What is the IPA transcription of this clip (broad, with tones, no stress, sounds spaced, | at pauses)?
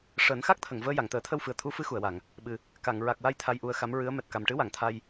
ʂ əː˨˩˦ n x a˦˥ k̚ t̪ʰ ə˨˩˨ ŋ v əː˧ j a˨˩˨ ŋ t̪ əː˨˩˦ t̪ʰ ə˧ w f ɨ˨˩ ə̯ t̪ʰ u˧˥ f ɨ˧˥ x u˨˩˨ ə̯ w a˨˩˨ ŋ | ɓ ɨ˨˩ | k a˨˩˨ ŋ ɹ a˨˩ k̚ w a˧ j t̪ʰ a˧ j ʔ u˧ ə̯ x a˧˥ m ɹ ɨ˧˥ ə̯ m ɛ˨˩ t̚ k a˨˩ m ʈ ɨ˧˥ w a˨˩˨ ŋ t̪ʰ a˧ j